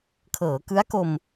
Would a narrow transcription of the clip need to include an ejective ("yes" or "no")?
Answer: no